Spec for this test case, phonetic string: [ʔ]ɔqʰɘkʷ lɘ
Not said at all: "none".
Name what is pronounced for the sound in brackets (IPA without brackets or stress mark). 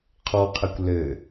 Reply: qʰ